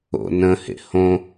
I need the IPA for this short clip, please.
o̰ n ə̃ h ḛ h õ

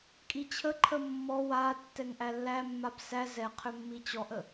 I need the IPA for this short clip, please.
kʼ i t͡ɕʰ ə ǃʰ ə mː ɔ w a tː ɛ ŋ ʔ æ lː æ mː a b s æ z ɛ qʰ ʏ mː i t͡ɕ ɔ ʔ ə

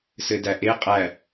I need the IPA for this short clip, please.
s ɘ d æ ʔ e qʼ æ

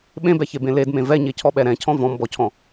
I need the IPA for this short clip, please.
ɓ ẽ b ɛ ç e b ẽ l e d m ẽ v ɛ ɲ e cʰ ɔ ɓ ɛ ɾ ɛ̃ cʰ ɔ̃ v ɔ̃ m b ɔ cʰ ɔ̃

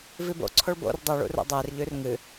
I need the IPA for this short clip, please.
v i b o̰ ǀʰ o ɭ b o̰ r dˤ u ɭ ṵ r o̰ dˤ e r ʎ ʉ r ŋ ɨ

